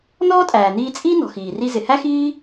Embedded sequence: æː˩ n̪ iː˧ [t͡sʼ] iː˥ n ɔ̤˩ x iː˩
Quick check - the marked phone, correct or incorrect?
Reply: correct